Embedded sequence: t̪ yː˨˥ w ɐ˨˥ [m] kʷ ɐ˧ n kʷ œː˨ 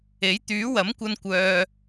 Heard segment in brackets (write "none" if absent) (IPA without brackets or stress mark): m